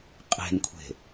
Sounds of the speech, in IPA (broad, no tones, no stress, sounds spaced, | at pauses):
qʼ e̤ n kʷʰ e̤